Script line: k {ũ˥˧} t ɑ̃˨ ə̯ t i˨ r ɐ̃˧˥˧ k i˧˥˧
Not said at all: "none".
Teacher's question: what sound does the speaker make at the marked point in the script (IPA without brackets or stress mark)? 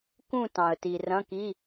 ũ˥˧